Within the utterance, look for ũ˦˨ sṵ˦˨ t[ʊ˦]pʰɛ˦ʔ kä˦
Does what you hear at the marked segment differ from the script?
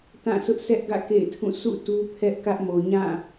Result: yes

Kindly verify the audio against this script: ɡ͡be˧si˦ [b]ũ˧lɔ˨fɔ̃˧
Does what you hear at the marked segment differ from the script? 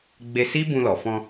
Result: no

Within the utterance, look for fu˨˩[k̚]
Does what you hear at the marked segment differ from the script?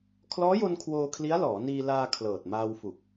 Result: no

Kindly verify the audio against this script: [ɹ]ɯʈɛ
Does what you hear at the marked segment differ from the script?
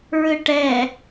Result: no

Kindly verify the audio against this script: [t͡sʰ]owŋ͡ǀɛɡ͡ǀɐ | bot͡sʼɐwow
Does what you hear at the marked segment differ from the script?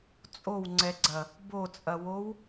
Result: yes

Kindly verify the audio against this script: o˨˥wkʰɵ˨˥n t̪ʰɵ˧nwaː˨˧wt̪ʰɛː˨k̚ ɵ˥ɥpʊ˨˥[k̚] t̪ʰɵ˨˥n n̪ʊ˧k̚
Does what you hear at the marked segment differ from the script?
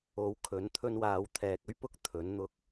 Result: no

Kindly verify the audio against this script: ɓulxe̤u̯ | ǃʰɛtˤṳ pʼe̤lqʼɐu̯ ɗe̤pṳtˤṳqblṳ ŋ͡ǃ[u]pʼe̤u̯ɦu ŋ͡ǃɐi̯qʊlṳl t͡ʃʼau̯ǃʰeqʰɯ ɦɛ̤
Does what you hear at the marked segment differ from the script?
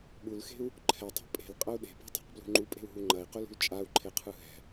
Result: no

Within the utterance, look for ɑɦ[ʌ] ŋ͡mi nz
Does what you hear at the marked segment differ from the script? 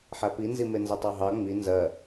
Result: yes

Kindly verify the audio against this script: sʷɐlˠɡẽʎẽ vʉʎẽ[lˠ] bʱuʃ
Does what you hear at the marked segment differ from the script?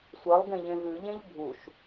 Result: yes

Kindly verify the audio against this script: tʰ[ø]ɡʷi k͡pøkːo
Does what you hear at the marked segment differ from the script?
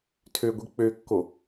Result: no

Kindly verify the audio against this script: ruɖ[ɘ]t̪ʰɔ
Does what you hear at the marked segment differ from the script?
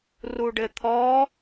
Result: no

